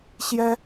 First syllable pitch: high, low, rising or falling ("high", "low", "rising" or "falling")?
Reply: high